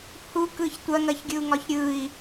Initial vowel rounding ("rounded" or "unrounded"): rounded